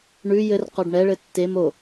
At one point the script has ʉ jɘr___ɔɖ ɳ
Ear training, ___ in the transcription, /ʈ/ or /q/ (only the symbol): q